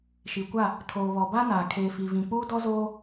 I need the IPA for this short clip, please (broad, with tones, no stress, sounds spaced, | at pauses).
ʃ i˨ kʷ a˦˨ | tʰ oː˨ β ɔ˨ b a˦ n aː˨ kʰ eː˨ f i˨ v ĩ˨ k͡p uː˦ d ɔ˦ z oː˦